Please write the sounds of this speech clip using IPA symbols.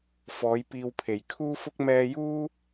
f ɔː˨˥ j p iː˧ w pʰ e˨˩ j kʰ uː˥ f ʊ˥ k̚ m ɛː˧ j uː˥

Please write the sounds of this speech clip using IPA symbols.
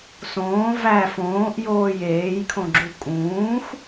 s õː v æ f õː ʔ j oː j eː j kʰ õ ɡ͡ǁ u kʼ ũː x

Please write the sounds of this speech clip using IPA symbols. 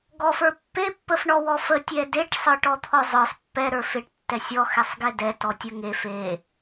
ɡ ɔ f ə˞ pː e pː ə f ɳ ɔ w ɔ f ə tʲ ɛ d e ʈ sˤ ə˞ ʈ ɔ t̪ʰ ɔ zˤ ə˞ sˤ pː ɛ ɾ ə˞ f e ʈ tː ɛ sʲ ɔ x ɛ sˤ ɡ e d ɛ t ɔ tʲ ə ŋ e f e

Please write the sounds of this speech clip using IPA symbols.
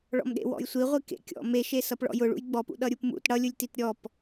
ɭ ɔ̰ m ɗ ḛ w ɔ̰ j sʷ i ʁʷ i k ḛ kʲ ɔ̰ m e ʃ e s ʌ p ɭ ɔ̰ j ʊ ɭ ṵ j ɡ͡b ɔ p ṵ ɗ ʌ ɾʲ u p m ṵ t ɽ ʌ lʲ ʊ lʲ t i t ɾʲ ɔ p

